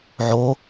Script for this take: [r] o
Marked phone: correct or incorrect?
incorrect: ʕ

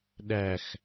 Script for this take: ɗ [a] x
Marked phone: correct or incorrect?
incorrect: æ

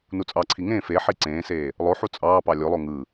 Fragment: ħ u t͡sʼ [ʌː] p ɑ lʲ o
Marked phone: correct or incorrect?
incorrect: ɑː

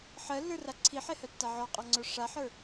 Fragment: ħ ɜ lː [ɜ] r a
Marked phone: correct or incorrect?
incorrect: ə˞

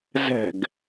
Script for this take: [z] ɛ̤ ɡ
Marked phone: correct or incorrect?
correct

